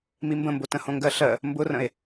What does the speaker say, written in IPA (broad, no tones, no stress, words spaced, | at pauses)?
mimbə̃mbo tə̃hõŋɡɜɬɜ | mbʊrə̃e̯